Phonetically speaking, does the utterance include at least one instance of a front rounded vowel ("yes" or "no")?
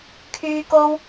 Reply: yes